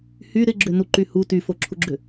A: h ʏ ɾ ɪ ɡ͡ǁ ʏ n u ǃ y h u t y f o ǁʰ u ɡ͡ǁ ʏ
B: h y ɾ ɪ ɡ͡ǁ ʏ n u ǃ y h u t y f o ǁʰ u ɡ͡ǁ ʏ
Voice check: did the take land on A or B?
B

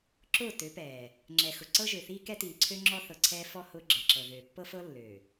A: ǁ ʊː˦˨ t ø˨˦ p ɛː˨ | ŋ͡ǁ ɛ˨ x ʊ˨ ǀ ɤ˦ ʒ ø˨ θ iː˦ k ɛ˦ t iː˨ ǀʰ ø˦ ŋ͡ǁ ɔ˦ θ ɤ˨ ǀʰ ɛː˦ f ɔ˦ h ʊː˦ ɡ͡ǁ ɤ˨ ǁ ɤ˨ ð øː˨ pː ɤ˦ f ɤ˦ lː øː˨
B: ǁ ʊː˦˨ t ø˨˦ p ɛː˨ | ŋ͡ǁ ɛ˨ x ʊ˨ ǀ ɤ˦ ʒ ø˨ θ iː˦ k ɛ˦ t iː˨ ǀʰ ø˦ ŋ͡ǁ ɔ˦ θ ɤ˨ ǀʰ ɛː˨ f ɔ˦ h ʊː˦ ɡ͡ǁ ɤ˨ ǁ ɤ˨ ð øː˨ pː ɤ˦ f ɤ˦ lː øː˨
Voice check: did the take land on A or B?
A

